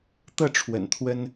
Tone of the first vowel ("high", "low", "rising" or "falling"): falling